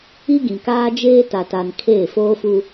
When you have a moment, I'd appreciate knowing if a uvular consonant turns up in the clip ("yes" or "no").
no